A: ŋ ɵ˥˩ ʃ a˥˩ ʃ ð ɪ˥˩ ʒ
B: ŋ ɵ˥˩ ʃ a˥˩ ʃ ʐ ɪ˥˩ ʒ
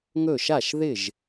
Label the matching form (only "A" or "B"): A